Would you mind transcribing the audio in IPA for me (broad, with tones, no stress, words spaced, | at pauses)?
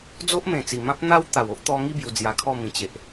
d͡zo˦ʔmẽ˨˩t͡si˨˩ mã˦p̚n̪a˦w t̪a˨˩wo˦ʔ t̪ɔ˧ŋi˦ bju˧d͡zja˧kʰɔ˥˧ mĩ˨˩t͡ɕe˨ʔ